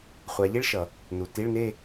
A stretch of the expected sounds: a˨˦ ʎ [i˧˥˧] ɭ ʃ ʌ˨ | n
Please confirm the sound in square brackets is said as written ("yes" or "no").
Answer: no